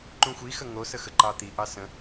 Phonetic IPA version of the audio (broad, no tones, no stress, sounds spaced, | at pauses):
ǃ ũ xʷ i x ə ŋ o s ə x ə ǃ ɑ t̪ i ʔ ɑ s ə̃